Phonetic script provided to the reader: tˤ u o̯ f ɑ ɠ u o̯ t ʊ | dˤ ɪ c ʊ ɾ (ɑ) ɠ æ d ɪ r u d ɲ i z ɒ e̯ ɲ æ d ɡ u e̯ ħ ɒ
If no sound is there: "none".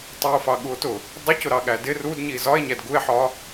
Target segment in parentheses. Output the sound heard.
ɑ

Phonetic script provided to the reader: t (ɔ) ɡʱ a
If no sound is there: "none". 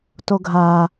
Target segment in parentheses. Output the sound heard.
o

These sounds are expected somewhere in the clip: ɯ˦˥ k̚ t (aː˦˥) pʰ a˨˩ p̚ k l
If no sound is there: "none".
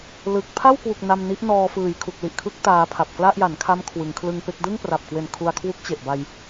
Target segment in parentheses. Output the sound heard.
aː˧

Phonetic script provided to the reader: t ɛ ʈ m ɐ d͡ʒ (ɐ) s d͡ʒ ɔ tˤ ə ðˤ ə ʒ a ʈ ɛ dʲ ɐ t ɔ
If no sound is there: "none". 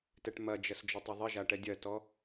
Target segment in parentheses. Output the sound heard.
ɐ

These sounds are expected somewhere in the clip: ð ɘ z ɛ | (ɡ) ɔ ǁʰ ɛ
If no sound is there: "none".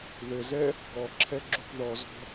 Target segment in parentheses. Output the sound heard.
ɡ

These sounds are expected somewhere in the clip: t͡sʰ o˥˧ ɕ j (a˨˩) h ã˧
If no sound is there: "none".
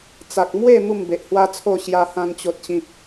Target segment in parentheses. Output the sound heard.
a˧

